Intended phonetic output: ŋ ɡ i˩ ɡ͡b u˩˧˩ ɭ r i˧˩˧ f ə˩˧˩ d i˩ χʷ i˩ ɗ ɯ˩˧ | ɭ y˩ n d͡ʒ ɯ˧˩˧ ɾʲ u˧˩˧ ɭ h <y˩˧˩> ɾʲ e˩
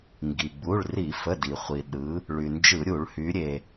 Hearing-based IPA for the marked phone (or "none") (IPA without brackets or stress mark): y˩˧